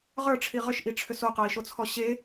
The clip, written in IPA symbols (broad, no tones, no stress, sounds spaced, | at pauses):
ʁ ə˞ ʈ͡ʂʰ i ʁ ʏ ʃ ʔ i ʈ͡ʂʰ ʏ s o q ɤ i̯ ʃ o t͡sʰ ɔ ɕ e